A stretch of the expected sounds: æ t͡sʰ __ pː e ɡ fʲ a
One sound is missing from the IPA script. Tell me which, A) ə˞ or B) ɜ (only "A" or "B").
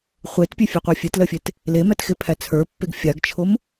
A